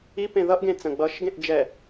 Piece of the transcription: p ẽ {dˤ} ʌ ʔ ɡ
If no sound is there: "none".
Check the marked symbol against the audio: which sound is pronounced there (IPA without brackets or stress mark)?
ð